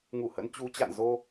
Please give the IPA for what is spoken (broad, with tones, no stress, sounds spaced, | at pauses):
ŋ u˧˩ h ə̰˧˥ n t͡ɕ u˨˦ t͡ɕ a̰˧˨ n z o˧